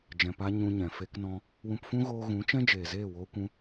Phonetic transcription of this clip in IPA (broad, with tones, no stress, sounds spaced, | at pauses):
d͡ʒ ɛ̃˨ p a˧ ɲ ũ˧ ɲ ɛ̃˨ f e˦ k n ɔ̃˦ | w ũ˧ p f ũ˦ ɣ oː˧ ɣ ũ˨˦ t͡ʃ ɛ̃˦ d͡ʒ eː˨ z eː˦˨ w oː˧ kʷ ũ˧